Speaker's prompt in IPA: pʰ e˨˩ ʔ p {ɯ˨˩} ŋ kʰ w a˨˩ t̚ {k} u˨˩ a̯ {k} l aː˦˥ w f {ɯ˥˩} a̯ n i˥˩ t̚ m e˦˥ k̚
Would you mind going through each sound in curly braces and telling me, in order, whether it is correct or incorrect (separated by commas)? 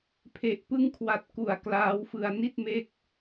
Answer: incorrect, correct, correct, incorrect